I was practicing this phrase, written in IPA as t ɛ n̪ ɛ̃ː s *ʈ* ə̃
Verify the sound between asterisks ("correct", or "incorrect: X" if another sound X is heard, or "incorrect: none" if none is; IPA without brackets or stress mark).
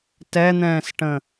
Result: correct